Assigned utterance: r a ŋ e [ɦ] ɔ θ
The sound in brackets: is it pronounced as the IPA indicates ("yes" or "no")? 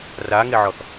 no